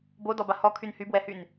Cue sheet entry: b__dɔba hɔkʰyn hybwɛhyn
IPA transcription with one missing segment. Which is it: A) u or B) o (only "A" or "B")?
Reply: B